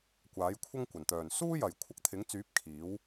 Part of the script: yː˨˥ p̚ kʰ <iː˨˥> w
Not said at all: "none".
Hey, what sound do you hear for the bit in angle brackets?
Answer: iː˨˥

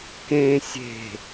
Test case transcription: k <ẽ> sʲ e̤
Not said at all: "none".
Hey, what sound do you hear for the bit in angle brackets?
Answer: ẽ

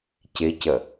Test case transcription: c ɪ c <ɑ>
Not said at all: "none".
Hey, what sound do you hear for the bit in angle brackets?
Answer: ə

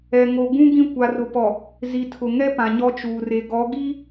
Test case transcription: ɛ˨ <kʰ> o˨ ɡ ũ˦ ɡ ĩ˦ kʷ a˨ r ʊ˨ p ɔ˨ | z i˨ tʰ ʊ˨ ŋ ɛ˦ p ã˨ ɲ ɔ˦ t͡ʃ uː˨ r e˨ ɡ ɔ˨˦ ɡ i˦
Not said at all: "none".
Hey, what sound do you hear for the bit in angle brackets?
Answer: ŋ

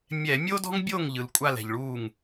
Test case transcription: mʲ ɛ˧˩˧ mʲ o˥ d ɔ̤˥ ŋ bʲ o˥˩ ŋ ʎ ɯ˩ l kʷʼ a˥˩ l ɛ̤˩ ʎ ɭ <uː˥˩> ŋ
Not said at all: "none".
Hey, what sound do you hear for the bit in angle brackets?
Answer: uː˥˩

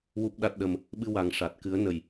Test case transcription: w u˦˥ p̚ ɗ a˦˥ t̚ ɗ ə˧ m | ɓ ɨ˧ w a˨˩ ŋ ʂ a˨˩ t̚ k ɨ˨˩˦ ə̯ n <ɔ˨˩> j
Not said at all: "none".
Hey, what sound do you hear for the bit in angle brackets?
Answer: ə˨˩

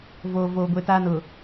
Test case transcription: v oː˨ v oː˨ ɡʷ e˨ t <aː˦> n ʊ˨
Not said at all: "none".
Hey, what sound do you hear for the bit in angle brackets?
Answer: aː˦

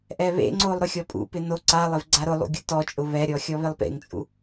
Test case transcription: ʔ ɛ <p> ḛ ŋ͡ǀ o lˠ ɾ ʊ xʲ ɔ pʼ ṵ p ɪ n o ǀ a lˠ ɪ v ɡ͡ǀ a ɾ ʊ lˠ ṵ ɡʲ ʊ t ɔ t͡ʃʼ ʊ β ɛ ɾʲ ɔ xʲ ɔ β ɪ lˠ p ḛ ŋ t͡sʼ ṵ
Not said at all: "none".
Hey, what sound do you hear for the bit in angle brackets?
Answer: β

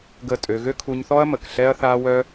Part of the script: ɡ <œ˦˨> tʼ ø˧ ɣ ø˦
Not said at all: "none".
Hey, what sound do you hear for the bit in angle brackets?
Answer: ə˦˨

